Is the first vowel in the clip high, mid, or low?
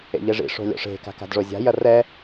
mid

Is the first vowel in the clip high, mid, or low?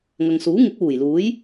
low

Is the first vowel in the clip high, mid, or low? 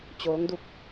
mid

